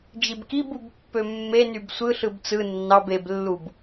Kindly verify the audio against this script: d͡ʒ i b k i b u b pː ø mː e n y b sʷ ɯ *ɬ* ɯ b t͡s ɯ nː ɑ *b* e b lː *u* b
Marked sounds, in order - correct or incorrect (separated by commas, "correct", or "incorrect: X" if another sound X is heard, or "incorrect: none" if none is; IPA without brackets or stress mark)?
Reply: correct, correct, correct